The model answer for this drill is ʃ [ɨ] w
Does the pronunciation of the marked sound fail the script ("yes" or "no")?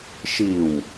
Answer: yes